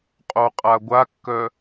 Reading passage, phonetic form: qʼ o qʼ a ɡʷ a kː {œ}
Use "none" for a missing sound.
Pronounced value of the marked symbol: œ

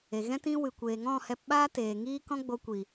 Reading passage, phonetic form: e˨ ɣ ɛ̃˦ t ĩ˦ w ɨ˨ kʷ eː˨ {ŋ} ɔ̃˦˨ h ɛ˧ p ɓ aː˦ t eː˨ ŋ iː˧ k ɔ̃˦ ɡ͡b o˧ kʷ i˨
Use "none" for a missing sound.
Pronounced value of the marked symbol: ŋ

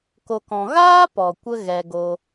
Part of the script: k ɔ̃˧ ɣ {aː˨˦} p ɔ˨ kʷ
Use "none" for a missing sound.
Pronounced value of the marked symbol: aː˦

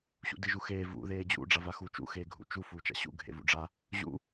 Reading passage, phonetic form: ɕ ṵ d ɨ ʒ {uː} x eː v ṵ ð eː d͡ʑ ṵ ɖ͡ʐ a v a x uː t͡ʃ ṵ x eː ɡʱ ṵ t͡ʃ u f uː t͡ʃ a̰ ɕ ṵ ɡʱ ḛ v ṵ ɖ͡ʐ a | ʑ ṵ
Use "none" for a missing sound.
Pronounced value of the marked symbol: u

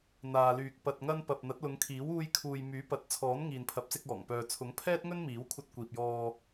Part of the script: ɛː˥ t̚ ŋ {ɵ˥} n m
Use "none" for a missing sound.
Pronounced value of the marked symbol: ɵ˥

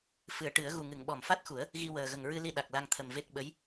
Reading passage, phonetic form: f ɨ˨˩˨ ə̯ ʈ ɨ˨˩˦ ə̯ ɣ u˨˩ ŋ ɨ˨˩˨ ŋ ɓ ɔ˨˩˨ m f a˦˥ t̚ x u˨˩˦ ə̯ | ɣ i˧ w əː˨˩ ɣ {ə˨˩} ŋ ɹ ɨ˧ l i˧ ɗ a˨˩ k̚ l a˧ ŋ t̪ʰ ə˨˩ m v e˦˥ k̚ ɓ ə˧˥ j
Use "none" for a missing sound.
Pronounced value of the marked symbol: ə˨˩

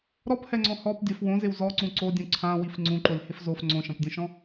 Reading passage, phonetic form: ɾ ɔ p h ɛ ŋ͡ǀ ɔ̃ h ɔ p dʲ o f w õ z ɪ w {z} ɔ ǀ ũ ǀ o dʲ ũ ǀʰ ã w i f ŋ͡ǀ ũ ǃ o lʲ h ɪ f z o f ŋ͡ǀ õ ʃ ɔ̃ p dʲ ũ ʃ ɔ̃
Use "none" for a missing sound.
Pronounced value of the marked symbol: z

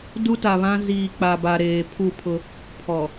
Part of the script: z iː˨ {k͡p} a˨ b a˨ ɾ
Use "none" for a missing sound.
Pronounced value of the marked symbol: k͡p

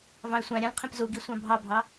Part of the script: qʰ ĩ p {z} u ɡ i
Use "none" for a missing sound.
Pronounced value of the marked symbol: z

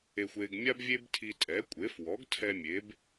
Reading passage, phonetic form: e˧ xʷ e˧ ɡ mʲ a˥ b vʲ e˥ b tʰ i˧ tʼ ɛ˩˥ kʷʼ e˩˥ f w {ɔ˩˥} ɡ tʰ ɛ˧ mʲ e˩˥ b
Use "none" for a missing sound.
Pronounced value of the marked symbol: ɔ˩˥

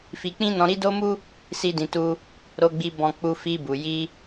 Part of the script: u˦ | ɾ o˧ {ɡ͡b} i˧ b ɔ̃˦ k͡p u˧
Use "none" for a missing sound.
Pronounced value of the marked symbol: ɡ͡b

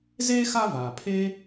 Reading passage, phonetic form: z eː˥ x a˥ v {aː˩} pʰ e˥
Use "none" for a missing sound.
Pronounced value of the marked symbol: aː˩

